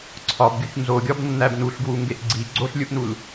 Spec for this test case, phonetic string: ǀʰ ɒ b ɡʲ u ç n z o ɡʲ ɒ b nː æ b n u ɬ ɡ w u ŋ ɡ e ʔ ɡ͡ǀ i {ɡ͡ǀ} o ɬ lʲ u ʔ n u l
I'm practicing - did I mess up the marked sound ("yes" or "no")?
no